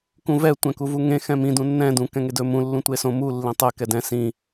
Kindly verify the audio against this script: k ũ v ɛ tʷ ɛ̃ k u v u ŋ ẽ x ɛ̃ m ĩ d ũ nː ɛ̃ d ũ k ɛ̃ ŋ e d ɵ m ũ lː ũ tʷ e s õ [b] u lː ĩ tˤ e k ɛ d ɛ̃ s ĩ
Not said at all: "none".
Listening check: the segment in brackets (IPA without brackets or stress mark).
m